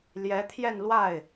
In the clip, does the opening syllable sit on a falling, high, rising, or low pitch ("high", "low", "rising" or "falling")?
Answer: rising